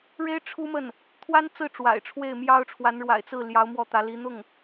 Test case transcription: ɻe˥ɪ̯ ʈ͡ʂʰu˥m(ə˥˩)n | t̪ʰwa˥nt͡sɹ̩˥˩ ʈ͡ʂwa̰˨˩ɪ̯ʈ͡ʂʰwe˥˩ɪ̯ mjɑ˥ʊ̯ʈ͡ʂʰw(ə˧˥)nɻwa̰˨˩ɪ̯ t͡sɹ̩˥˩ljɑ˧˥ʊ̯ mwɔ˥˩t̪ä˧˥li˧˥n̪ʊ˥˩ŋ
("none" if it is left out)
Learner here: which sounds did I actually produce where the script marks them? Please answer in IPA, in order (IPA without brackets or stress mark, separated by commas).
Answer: ə˥˩, a˧˥